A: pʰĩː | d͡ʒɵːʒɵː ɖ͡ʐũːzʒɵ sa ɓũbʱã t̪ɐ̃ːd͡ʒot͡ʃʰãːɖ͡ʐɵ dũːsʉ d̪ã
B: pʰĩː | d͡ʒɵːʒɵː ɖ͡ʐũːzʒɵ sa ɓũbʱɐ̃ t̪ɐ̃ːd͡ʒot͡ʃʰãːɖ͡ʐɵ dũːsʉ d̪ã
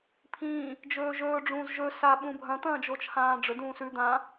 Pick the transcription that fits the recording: B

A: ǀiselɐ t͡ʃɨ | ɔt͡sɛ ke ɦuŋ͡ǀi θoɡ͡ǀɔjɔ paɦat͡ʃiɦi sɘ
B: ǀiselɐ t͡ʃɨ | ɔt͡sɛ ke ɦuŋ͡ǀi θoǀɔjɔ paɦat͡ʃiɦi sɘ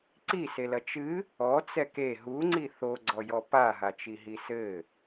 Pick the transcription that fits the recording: A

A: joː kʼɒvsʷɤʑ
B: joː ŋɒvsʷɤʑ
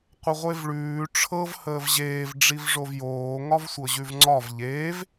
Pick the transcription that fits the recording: B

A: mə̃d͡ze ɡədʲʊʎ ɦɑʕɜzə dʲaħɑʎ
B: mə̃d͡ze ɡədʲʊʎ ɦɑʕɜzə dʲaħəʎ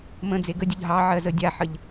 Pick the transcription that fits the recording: B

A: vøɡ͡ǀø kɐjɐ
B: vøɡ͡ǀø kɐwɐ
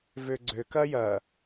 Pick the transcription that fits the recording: A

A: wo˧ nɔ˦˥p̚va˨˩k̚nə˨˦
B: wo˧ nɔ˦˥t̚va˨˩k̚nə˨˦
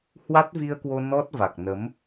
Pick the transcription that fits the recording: B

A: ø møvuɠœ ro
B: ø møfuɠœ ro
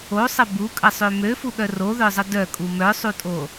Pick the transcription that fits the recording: B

